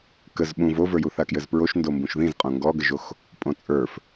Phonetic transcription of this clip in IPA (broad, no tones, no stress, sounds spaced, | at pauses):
k ə z ɓ ũ v o v ə˞ j u θ a k j ɘ z p ɹ o ʃ n d o m b ũ ʃ ð ĩ z qʼ õ ŋ ɡ ɔ ɡ ə ʒ o x | pʼ õ t͡sʼ ə˞ f